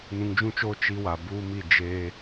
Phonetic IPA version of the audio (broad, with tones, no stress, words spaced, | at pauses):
nũ˨ŋd͡ʒũ˦t͡ʃoː˦ t͡ʃi˦wa˨ buː˦mi˦˨d͡ʒeː˦